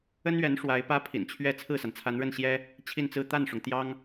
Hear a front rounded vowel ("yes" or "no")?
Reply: no